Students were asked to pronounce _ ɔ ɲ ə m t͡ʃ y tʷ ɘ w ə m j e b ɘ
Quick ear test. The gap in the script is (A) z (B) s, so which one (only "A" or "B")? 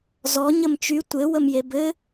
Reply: A